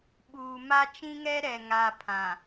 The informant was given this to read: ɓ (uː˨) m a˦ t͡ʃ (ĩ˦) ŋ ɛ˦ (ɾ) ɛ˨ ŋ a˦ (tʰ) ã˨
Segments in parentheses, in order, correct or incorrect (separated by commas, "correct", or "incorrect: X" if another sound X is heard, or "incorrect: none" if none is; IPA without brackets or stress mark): correct, correct, correct, incorrect: pʰ